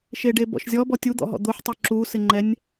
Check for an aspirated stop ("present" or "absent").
absent